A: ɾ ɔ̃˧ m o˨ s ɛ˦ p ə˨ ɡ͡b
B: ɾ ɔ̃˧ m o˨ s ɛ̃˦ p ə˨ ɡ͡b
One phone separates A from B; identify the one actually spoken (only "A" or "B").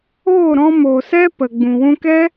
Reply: A